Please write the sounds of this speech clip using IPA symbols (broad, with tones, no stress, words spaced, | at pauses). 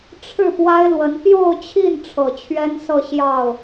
ʈ͡ʂʰɻ̩˥˩ pwa˥ɪ̯lwə˧˥n pjo˥˧ʊ̯t͡ɕʰi˥˩n ʈ͡ʂʰɤ˨˩t͡ɕʰɥɛ˥nsɤ˥˧ ɕjɑ˥˩ʊ̯